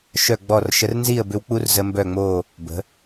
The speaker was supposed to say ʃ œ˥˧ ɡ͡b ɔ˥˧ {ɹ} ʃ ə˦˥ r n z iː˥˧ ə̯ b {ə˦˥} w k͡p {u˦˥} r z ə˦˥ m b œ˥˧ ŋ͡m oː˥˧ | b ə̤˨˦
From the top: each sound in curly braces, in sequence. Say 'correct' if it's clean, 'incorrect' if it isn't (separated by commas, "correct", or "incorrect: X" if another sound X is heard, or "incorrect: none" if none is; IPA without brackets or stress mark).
incorrect: r, incorrect: ʏ˦˥, correct